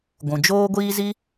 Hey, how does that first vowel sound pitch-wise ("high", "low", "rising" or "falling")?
low